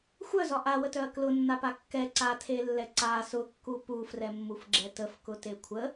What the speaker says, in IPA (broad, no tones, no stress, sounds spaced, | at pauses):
xʷ œ z ɒ ʔ a w ə t œ ɐ̯ k l ʊ nː a p a kː ɛ ǀ a tʰ e lː ɛ ǀ a s ʊ kː u p u f r ɛ mː u f ɡ͡ǁ ɛ t ə f k ʊ t e kʷʰ ə